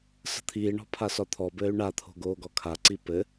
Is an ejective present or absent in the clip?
absent